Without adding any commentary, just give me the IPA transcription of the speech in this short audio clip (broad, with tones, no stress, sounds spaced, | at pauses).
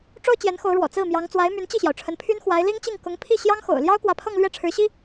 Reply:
ʈ͡ʂ o˥ ʊ̯ t͡ɕ j ɛ˧˥ n x o˧˥ ʊ̯ ɻ w ɔ̰˨˩ t͡s ɹ̩˥˩ m j ɑ˧˥ ŋ t͡s w a˧˥ ɪ̯ m y˧˥ n t͡ɕ i˥˩ ɕ j ɑ˩ ʊ̯ ʈ͡ʂʰ ə˧˥ n pʰ y˥ n x w a˧˥ ɪ̯ l i˥ ŋ t͡ɕ i˥˩ ŋ k ʊ˧˥ ŋ pʰ i˥˩ ɕ j ɑ˥ ŋ x o̰˨˩ ʊ̯ l j ɑ˥ ʊ̯ k w ä˧˥ pʰ ɤ˥˧ ŋ l ɥ ɛ˥˩ ʈ͡ʂʰ ɻ̩˧˥ ɕ i˥